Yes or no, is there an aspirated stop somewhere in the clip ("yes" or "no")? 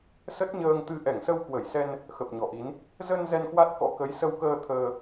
yes